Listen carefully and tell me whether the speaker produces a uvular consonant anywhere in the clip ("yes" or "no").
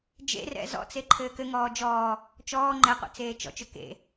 yes